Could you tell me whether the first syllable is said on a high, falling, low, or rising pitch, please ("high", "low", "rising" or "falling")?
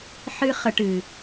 high